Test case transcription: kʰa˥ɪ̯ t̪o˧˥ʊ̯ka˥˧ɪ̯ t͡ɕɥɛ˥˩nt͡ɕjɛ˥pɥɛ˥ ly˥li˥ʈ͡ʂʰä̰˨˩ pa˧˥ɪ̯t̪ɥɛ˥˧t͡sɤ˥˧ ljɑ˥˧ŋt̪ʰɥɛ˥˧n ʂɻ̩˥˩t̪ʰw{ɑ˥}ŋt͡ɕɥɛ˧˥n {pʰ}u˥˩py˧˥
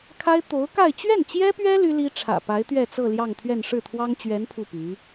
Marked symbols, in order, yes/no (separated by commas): yes, yes